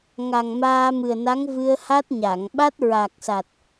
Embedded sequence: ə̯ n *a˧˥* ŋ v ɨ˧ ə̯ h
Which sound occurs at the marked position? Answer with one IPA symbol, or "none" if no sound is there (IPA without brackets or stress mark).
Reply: a˧˥